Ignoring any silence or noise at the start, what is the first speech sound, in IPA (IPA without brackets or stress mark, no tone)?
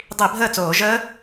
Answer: dˤ